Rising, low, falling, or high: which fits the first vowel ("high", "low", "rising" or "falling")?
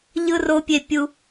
high